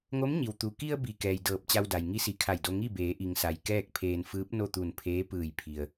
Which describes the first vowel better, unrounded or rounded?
rounded